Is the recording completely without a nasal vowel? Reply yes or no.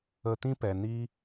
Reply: no